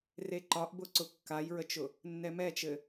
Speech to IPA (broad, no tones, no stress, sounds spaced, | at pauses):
r e ǃ ɒ ʔ b ʊ ǀ ʊ kː a j ɹ ə t͡ʃ ʊ | nː ɛ m ɛ t͡ʃ ɘ